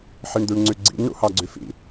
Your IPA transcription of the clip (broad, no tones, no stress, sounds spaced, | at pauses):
ħ i ɳ d̪ y ɳ ŋ͡ǀ y ɡ͡ǀ ḭ n ɳ ṵ h ɑ ɡ͡ǀ y f ḭ